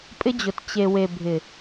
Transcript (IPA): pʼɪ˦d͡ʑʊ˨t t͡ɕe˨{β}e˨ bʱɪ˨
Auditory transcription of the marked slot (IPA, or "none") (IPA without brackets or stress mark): w